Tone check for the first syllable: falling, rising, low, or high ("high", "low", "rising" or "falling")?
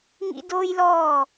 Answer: high